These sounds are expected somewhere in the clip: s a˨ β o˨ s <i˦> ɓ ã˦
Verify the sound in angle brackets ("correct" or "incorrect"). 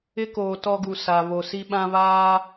correct